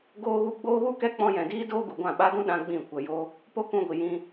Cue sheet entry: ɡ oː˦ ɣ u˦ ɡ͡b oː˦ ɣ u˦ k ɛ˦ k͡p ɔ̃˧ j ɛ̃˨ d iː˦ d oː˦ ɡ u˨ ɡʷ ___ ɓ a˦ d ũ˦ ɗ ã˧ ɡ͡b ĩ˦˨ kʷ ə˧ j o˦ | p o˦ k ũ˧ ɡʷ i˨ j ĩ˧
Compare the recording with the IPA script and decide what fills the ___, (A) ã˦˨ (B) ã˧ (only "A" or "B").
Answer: A